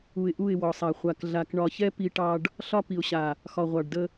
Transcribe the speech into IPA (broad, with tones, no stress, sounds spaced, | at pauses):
u˨ ɪ̯ ʔ u˦˨ ɪ̯ w ɔ˨ sˤ a˨ χʷ a˨ k ɮ a˨ k ɳ ɒ˨ ç ɛ˦ p i˦ ʈ ɑ˦ ɖ | ɬ ɒ˦ p i˨ ʊ̯ ɕ a˨ | x ɒ˨ ʁʷ ɑ˨ ɖ d ə˦